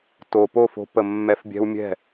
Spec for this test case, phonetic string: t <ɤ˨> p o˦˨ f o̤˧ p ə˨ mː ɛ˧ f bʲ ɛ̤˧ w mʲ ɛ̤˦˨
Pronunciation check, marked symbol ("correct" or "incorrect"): incorrect